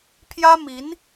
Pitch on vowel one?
high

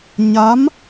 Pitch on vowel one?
rising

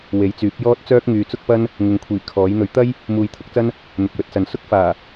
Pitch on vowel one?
rising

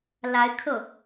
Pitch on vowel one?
rising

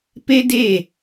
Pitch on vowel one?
high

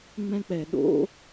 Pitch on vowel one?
high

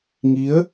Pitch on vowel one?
rising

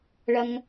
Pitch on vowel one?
high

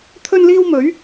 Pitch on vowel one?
high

